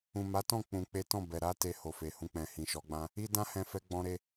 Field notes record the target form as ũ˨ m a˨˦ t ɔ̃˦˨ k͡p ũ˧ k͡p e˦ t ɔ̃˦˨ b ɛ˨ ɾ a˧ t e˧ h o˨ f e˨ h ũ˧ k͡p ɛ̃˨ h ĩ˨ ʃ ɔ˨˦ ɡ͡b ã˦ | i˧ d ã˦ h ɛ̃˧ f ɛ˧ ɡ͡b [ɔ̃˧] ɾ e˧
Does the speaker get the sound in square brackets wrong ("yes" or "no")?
no